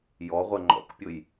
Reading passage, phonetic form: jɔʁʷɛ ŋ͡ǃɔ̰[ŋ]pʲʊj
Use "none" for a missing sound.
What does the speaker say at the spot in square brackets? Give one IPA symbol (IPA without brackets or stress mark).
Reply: k